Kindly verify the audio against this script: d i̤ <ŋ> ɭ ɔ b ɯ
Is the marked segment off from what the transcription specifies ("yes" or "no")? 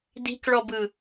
yes